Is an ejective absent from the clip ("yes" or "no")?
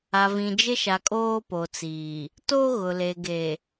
no